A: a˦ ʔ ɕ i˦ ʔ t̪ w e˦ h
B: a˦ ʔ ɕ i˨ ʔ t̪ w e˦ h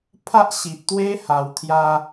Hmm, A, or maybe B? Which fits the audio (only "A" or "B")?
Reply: B